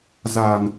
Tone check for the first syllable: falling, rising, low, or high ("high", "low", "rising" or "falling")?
low